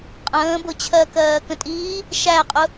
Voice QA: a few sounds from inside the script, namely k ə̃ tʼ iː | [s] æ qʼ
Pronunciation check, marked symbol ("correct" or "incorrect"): incorrect